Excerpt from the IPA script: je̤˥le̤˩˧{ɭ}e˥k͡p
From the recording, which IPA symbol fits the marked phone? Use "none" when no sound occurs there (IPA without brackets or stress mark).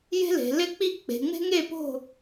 l